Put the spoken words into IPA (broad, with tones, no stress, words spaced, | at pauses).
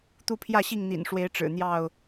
t̪u˦pʰjä˥˨ɕi˥˨ŋ n̪ḭ˨˩nʂwe˨˦ɪ̯ ʈ͡ʂɻ̩˨˩n̪jɑ˥˨ʊ̯